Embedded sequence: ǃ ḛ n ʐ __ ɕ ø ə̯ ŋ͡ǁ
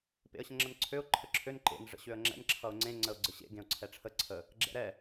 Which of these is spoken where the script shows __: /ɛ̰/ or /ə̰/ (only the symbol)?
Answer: ə̰